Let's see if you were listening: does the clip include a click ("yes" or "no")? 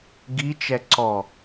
yes